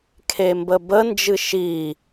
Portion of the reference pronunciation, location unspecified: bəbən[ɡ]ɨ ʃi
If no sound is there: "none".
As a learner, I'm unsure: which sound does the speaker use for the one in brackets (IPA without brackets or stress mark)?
d͡ʒ